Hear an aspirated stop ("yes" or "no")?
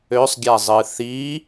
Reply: no